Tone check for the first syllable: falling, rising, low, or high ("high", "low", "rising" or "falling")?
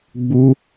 high